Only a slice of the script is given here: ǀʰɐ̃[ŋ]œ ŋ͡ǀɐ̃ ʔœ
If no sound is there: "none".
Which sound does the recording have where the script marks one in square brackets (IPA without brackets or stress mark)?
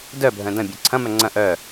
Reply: m